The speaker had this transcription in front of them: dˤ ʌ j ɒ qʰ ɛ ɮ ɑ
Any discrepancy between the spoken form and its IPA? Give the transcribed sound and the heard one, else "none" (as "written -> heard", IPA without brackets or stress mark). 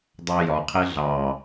ʌ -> ɑ